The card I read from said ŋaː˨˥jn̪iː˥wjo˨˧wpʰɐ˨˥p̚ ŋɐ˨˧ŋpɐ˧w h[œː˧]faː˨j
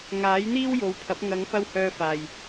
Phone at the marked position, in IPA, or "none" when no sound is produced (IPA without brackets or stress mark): œː˧